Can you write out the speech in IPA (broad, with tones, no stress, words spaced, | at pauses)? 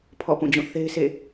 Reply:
pʰɔ̰˦˨pũ˦˨d͡ʑũ˦˨ θe˦ɪ̯sʰḛ˦˨